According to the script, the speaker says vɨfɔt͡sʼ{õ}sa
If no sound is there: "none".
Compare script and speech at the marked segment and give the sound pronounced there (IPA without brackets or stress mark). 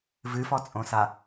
õ